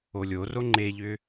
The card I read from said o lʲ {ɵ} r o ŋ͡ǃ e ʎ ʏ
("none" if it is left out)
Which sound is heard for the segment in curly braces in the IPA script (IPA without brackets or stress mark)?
o